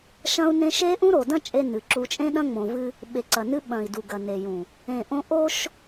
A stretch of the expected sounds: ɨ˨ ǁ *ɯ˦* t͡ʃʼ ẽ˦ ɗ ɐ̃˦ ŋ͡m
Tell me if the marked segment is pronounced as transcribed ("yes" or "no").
no